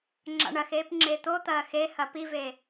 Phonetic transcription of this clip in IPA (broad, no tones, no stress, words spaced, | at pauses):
ŋ͡ǁa̰ɳɐxeːp ŋ͡ǁet̪o t̪ɐːxe hɐpive